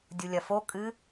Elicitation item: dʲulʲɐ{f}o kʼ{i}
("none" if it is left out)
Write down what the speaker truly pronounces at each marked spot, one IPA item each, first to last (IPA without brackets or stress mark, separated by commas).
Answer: f, ɨ